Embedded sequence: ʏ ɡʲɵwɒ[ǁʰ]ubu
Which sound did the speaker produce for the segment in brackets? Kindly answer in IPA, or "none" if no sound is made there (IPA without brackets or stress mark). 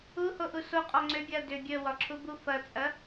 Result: ǁʰ